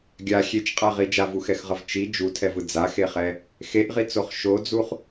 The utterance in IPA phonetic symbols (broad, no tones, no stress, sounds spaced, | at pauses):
ɡʲ a xʲ e t͡ʃ qʼ a ʁ i d͡ʒ a v u x ɛ x ʁ ʌ v t͡ʃ i d͡ʒ u tʰ ɛ v ɯ d͡z a x e χ ɛ | x e ʔ ʁ i t͡s o χ ʃ o d͡z u χ